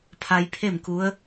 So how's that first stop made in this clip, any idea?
aspirated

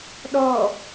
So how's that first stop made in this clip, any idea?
implosive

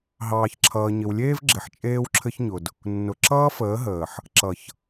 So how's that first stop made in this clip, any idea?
click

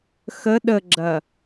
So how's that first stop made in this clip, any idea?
implosive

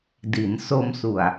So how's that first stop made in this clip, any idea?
plain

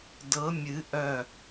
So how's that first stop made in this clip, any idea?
plain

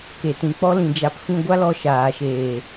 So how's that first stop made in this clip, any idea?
plain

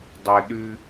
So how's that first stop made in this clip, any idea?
plain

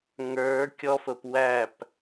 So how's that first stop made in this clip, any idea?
plain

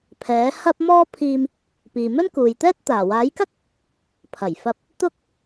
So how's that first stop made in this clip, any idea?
aspirated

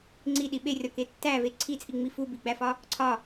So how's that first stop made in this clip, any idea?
click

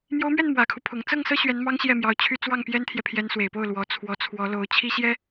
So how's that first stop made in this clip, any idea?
aspirated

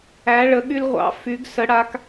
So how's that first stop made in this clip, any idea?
implosive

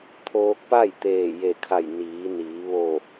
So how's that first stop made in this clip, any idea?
aspirated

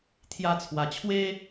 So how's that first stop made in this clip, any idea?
aspirated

